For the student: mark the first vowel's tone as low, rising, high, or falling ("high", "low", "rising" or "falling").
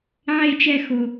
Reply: high